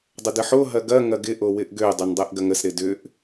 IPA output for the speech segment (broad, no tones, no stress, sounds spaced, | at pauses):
dˤ ə d ə ħ o ɦ ɐ ɡ ɐ ŋ ɐ ɡ ɪ ʔ o w ɪ ʔ ɡ ø dˤ ø n dˤ ɛ ʔ ɡ ɐ ŋ ə s ɾ ɪ d ʏ ʔ